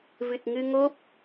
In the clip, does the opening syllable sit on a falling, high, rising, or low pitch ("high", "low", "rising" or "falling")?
low